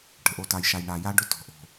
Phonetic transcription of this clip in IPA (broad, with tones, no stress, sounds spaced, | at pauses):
ʈ ə̤˨ ʔ o˨ t a˨ j ʃ a˨ j ɳ a˨ j a˦ ɖ ʊ˦ t ɔ̤˨ ʔ o̤˨